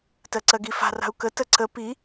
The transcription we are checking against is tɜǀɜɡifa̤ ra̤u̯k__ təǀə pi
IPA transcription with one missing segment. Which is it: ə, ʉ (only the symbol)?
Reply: ə